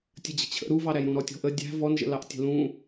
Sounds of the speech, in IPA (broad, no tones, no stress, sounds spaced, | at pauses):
tʲ ə d͡ʑ ə̤ t͡ɕʰ ə̰ ɾ u v ɑ ɾ æ j ɾ ũ ɾ ɔ tʲ ɔ̤ ʔ ə dʲ æ̤ v ɔ n ʒ ə̰ l ɑ ʔ tʲ ə̤ l ũ